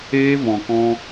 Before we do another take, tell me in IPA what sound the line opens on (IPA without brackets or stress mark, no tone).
eː